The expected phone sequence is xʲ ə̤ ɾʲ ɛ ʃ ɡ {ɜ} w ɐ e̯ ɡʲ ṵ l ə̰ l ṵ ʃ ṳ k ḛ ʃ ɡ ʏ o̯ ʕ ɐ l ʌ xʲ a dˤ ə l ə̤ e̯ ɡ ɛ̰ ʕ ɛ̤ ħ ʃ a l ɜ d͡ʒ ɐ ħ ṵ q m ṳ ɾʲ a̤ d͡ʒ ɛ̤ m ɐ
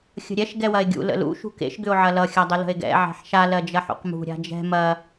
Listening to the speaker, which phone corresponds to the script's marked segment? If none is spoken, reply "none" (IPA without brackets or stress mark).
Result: ɛ